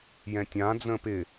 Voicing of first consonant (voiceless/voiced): voiced